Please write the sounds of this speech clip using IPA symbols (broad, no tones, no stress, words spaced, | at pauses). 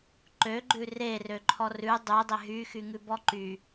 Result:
ǃøɡ͡ǃʉ rerøǃʰɔ rʉ dˤʉdˤe ɦyxyŋʉbɔ ǃy